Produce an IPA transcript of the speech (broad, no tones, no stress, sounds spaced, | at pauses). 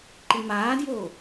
ǃ i m aː d j oː